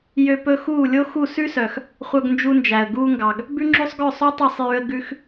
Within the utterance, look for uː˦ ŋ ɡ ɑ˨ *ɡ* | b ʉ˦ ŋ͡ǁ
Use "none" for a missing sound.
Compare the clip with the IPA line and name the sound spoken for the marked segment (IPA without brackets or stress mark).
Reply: ɡ